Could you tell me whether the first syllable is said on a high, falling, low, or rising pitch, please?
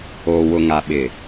low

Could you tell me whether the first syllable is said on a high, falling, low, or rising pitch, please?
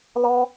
high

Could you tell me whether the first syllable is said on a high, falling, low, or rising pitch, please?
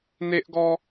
high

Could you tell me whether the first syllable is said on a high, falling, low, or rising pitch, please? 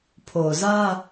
low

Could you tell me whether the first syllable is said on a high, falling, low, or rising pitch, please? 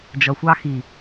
low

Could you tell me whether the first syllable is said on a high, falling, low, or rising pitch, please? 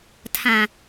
low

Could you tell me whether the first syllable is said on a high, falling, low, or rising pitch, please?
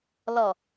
low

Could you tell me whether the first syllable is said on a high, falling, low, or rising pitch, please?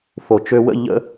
low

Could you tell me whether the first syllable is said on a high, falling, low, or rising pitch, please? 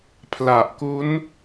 low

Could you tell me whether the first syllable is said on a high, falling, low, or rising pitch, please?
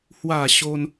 falling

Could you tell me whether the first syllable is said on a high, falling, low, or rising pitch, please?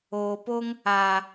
low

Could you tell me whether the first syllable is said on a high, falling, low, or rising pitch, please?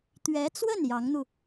rising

